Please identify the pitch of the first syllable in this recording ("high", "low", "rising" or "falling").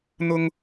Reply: high